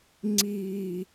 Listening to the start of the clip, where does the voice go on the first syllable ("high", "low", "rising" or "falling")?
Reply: low